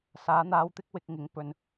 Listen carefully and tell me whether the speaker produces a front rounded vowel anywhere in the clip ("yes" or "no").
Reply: no